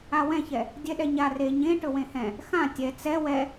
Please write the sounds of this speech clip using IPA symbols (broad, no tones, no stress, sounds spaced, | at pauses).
a w ɛ̃ ç ɛ | dʲ ɛ ɗ ɛ ɲ a r e ɲ ẽ ʈ ɵ w ẽ h ɛ̃ | x ã tʲ ɛ t͡s ɛ w ɛ